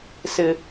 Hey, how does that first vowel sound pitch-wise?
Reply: low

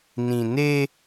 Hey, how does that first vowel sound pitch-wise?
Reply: low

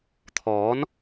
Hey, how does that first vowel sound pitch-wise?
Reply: rising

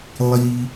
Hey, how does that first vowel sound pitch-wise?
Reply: high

